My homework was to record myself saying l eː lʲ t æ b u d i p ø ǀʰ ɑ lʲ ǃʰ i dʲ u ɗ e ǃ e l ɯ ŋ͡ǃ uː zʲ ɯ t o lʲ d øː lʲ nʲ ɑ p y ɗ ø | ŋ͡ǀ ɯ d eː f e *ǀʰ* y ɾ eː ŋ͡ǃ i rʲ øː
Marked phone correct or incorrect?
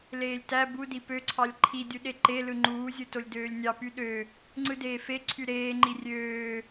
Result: correct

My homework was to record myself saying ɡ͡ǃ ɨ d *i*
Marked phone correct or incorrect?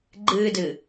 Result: incorrect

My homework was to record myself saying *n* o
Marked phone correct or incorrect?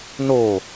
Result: correct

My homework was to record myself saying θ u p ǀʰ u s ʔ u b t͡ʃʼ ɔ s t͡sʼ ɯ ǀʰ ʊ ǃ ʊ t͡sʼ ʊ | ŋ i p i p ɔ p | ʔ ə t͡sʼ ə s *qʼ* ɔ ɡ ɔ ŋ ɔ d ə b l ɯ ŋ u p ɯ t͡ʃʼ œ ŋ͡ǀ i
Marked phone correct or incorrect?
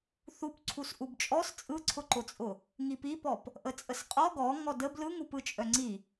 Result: correct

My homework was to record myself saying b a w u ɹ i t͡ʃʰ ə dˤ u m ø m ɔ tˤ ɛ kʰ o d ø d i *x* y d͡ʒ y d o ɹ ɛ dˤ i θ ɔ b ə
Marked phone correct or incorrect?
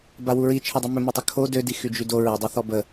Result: correct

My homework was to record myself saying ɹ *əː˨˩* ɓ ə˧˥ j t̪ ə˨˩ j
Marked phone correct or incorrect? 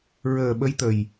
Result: correct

